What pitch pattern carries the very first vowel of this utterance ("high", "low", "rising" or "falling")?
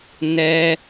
high